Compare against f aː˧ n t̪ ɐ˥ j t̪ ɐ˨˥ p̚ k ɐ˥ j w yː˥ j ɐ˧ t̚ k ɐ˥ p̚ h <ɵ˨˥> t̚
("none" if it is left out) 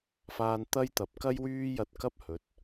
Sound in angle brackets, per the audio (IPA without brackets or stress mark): ɵ˨˥